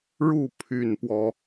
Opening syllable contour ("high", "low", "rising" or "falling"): falling